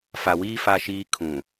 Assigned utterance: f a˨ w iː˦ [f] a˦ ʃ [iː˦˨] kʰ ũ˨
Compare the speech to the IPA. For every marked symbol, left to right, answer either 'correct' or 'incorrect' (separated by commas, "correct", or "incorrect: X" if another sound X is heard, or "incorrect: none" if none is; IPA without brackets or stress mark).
correct, incorrect: iː˦